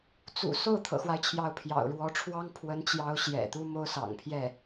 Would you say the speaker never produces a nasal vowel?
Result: yes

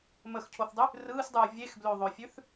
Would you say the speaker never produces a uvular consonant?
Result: yes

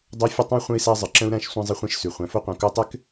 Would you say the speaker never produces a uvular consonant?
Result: no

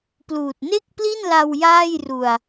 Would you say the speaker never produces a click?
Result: yes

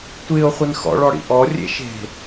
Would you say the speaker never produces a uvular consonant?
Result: no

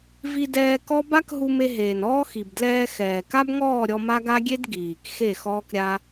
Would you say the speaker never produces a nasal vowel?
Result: yes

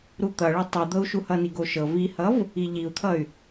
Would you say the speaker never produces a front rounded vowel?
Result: no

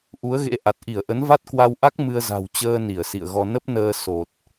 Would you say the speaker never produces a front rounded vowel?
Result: yes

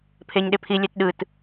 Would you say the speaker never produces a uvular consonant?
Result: yes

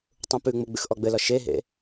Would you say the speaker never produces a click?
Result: yes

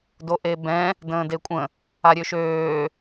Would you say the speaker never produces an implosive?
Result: yes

